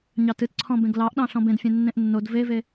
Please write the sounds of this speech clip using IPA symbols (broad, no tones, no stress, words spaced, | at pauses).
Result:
ɲɑtɨtǀʰɔ̃bẽɡ lɑʔɗɑ̃ ɬɔ̃bẽdfʲẽ nːẽʔnːod veve